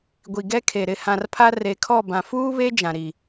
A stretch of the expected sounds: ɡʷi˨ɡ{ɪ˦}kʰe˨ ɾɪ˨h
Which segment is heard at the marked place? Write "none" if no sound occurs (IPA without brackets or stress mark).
ɛ˦